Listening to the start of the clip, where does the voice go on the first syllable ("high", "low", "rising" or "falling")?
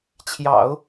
low